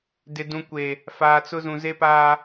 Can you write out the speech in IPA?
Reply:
dɪ˨ dũ˨kʷe˨ | faː˨t͡sʊ˦zũ˨ ze˦paː˦

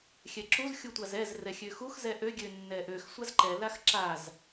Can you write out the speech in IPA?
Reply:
xʲɛǁuz xʲutʷazɛz rɛxʲøxux zɛʔø ɡʲønːɛʔøx sʷazǃɛ laxǁaz

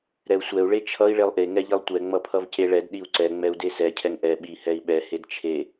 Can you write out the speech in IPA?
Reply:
ɾɛu̯sʷɛu̯ ɭet͡ʃʰʌi̯ ɭelˠʔe ŋɛʎilˠtʷɛ ŋ͡mʌpʰʌvceɭɛd ɗiu̯ǀɛ ŋ͡mɛu̯desɛ cʰɛŋʔɛ ɓi hɛi̯ɓɛ hedt͡ʃʰe

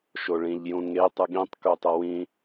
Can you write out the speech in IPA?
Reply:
ʃoɭĩʎ jũŋe tˤɯɠĩtˤ kutˤʌwĩ

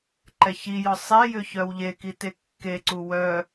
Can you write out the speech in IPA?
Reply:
ǃɛçijɔ sˤɛjʏ çœwʎeki tekːeǀu wœ

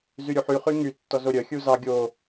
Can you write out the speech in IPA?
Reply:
zyɾʲuħy χyŋy tːɔzoɾʲœ xʲuzɑ ɡʲo

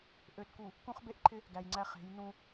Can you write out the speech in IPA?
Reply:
ʔø˨tku˨ | kũ˦χbe˦ʔǃʰɪ˦ | ɡæ˨jŋ͡ǀæ˦χe̤˨˦j nũ˦

